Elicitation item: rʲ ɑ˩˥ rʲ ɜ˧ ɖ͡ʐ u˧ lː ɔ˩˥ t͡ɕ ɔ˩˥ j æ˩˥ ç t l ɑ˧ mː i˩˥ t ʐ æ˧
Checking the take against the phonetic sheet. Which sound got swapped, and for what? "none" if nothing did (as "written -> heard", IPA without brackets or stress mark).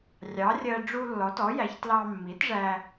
t͡ɕ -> t